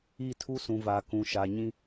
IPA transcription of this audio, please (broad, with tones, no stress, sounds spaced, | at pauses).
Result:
i˦˨ tʰ u˦ s ũ˨ v a˨ k ũ˨ ʃ a˨ ɲ ĩ˦